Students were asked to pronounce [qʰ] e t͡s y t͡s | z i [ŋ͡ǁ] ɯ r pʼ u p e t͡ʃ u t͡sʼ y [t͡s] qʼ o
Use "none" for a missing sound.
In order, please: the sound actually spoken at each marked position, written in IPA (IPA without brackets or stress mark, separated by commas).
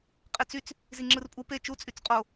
qʼ, ŋ͡ǁ, t͡s